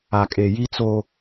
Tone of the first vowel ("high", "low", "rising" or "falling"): low